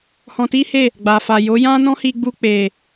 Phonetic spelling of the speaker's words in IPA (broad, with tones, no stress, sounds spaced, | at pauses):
h ɔ̃˧ t i˦ h e˦˨ | ɡ͡b a˨ f a˨ j o˨˦ j ã˦ n ɔ̃˦ h i˧ ɡ͡b u˧ k͡p e˨